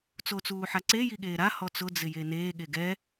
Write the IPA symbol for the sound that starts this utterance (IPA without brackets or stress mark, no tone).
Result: t͡s